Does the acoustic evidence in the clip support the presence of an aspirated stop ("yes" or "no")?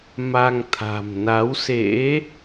yes